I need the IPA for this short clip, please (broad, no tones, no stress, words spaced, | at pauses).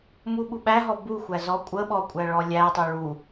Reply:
muɓuɓæɦɔ buxʷæ zɔkʷʼəɓɔ kʷʼæɭɔlʲætˤu ɭu